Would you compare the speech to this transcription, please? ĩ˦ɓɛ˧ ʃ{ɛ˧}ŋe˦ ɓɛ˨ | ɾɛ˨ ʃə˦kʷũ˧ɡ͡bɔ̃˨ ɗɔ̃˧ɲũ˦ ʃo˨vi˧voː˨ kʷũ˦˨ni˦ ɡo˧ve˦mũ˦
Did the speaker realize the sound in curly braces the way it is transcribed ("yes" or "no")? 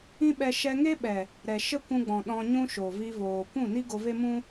yes